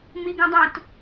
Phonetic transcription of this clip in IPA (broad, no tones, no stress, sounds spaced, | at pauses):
m i ɡ ũ dˤ ũ t